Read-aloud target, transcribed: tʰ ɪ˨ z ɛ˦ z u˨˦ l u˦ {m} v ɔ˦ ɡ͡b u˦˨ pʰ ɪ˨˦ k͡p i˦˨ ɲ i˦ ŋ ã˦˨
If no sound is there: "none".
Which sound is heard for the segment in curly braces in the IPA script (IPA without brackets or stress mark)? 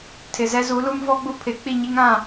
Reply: m